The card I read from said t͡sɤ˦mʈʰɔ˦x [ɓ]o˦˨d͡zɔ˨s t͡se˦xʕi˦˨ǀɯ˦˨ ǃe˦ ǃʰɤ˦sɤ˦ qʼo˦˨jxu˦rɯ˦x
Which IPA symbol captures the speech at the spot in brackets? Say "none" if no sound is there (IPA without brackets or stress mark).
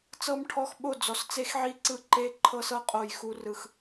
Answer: ɓ